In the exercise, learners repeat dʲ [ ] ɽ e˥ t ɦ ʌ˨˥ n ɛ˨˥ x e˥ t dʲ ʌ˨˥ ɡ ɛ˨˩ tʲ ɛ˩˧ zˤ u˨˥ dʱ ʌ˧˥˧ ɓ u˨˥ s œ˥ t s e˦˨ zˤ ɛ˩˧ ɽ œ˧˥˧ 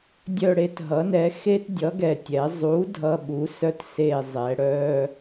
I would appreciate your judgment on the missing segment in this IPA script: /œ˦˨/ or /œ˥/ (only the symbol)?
œ˦˨